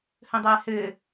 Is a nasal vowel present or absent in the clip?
present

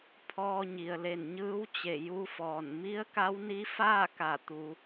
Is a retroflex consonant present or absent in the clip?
absent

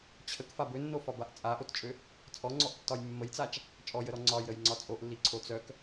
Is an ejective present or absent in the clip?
present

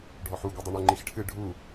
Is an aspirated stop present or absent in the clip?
present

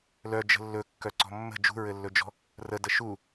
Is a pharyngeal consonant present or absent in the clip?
absent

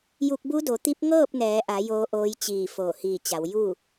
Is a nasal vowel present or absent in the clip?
absent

